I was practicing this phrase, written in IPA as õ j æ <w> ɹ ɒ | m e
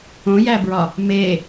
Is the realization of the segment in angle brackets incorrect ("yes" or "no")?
yes